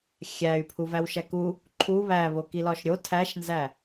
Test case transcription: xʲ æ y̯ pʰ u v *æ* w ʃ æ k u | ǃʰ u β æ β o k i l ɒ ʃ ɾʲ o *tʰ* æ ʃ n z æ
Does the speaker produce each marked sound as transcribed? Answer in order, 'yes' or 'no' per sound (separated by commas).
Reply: yes, yes